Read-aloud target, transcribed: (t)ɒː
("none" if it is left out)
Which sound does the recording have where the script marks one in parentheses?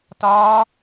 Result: t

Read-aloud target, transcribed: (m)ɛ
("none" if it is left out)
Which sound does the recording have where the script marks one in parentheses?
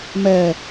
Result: m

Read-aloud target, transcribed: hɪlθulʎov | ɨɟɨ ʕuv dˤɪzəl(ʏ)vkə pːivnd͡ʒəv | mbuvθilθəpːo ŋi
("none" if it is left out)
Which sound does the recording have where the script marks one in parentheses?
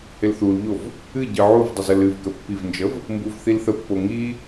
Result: ɨ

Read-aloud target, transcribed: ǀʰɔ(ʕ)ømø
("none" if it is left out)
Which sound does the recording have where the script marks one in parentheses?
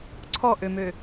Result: ʔ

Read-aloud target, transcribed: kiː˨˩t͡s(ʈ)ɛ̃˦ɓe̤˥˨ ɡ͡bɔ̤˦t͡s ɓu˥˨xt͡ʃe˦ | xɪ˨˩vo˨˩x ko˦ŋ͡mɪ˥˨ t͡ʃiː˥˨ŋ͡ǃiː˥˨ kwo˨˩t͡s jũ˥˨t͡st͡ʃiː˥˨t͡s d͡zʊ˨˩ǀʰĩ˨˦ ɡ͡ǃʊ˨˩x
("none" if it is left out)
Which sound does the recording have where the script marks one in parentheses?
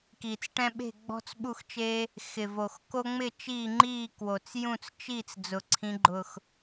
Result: ʈ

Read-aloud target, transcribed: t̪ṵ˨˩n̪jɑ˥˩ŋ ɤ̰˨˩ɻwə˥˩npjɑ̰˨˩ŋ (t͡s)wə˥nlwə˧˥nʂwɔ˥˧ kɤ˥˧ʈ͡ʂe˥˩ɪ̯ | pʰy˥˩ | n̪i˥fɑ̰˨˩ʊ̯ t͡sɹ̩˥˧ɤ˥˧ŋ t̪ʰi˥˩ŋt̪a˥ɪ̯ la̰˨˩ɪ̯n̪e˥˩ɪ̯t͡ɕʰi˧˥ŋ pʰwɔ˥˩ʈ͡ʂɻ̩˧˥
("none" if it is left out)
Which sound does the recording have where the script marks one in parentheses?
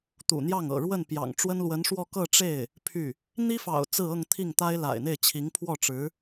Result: ʈ͡ʂ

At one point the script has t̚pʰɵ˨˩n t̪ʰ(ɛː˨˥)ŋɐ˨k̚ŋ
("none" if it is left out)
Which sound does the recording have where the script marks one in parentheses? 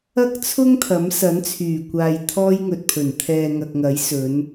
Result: ɛː˨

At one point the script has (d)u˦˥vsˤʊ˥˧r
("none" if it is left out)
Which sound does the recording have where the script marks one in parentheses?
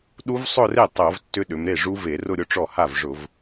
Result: ɗ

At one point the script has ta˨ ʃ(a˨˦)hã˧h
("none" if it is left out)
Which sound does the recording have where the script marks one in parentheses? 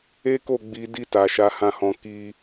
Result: a˧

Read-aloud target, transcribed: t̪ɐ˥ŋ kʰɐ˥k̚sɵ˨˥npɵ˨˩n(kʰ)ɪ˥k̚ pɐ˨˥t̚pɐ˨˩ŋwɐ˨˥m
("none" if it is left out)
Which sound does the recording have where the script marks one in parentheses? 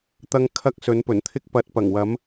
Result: t̪ʰ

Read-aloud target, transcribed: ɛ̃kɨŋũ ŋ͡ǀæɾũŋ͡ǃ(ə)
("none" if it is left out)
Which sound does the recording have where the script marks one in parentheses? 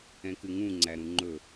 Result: ɵ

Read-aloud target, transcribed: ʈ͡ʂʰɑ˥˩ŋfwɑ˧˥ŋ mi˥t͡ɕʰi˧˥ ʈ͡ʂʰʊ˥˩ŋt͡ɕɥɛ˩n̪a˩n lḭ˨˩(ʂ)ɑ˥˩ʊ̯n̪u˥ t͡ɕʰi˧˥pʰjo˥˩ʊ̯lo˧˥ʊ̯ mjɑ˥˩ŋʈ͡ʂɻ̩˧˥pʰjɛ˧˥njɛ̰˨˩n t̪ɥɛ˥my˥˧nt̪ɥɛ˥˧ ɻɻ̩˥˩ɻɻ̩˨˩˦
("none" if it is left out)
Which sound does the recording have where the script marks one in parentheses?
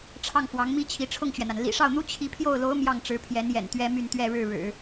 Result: ʂ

